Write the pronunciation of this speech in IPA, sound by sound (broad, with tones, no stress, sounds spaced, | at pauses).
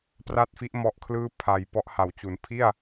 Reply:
p r a˥˩ t̚ f i˦˥ ʔ m ɔ˦˥ ʔ kʰ l ɯː˥˩ pʰ a˨˩ j p ɔ˦˥ ʔ h a˩˦ w t͡ɕ u˩˦ n pʰ i˥˩ a̯